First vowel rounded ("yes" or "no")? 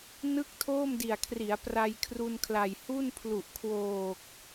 no